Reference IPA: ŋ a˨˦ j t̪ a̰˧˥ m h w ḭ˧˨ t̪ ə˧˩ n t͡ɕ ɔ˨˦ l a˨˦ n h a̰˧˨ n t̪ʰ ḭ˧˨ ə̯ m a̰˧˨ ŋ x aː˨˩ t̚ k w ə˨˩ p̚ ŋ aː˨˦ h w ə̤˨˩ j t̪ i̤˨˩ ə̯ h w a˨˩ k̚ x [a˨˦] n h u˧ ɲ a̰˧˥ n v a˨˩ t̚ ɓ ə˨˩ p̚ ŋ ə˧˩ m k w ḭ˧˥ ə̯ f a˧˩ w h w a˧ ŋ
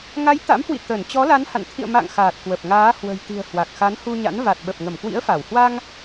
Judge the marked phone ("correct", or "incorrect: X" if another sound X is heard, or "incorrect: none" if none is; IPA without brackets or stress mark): correct